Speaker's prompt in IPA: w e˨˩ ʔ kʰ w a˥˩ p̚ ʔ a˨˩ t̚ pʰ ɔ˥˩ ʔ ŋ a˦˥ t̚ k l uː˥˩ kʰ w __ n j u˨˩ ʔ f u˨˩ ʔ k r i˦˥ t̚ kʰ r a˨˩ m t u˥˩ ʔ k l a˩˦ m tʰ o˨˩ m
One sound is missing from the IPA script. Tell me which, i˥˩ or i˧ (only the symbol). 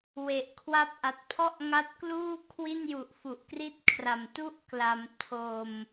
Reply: i˥˩